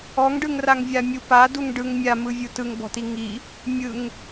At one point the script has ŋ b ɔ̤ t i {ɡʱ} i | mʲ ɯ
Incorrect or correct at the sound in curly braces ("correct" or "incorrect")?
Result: incorrect